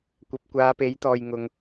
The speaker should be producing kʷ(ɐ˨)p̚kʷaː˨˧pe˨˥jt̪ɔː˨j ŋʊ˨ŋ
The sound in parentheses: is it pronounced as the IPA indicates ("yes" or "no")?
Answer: yes